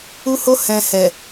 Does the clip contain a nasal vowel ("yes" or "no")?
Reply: yes